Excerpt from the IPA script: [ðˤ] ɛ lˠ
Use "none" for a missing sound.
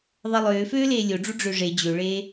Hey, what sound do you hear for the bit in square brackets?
ðˤ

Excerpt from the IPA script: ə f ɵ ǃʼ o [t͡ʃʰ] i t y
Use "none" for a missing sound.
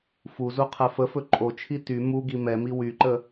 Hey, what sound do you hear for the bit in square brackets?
t͡ʃʰ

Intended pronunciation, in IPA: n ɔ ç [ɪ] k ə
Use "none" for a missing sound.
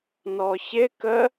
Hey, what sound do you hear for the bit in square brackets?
ɪ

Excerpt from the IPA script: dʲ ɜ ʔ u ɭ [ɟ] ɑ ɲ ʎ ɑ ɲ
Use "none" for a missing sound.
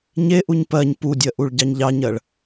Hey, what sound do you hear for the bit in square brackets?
ɟ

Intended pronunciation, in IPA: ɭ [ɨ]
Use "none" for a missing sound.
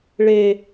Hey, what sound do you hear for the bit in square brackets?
e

